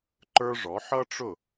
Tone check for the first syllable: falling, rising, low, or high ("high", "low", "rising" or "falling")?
high